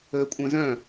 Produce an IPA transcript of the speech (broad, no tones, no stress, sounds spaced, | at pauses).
əː kʷʼ œ̃ z œ̃